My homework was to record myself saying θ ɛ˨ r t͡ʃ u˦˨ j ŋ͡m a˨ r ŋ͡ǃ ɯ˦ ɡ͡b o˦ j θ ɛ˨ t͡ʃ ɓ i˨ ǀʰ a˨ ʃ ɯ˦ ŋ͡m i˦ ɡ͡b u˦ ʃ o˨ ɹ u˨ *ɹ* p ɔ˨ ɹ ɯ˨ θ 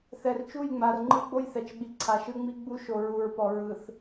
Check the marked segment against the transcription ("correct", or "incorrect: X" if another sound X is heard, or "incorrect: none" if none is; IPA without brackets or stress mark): correct